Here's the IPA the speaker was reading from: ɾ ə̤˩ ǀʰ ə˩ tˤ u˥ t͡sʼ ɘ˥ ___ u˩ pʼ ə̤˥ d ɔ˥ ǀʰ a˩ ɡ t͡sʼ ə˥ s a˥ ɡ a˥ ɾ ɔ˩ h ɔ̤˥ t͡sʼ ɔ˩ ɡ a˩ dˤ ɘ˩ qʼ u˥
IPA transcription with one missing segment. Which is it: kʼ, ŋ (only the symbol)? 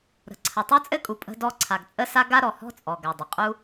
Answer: kʼ